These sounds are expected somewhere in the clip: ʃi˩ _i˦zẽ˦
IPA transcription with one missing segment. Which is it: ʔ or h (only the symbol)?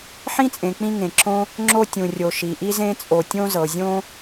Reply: ʔ